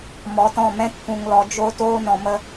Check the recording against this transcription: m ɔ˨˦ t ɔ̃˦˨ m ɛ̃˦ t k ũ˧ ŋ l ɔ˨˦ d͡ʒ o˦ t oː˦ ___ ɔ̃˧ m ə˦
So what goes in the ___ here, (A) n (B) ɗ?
A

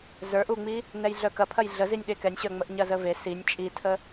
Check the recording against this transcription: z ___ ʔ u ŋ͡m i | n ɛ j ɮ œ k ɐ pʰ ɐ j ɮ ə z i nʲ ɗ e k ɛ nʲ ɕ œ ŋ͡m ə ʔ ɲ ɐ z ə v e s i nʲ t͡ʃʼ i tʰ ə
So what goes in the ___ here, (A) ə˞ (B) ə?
A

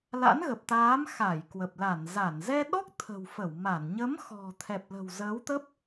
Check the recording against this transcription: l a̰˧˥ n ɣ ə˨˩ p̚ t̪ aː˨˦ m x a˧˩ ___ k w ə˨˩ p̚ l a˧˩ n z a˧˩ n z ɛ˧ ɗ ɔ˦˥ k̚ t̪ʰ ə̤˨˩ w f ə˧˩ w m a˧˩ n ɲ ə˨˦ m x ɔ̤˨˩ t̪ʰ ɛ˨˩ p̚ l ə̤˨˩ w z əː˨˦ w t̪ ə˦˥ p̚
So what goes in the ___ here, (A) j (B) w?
A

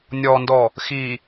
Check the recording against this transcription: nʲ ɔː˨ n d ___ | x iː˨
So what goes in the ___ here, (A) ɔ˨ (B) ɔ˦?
A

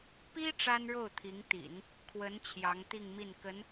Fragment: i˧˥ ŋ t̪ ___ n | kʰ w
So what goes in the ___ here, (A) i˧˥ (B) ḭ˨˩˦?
B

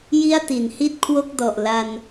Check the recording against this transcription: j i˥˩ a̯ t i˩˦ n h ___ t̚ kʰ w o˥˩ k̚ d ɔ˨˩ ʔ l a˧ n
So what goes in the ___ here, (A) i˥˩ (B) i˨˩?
A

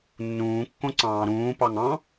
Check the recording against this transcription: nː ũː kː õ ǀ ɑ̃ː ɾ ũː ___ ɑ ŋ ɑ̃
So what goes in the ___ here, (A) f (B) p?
B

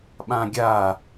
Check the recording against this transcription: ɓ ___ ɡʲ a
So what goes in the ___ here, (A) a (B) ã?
B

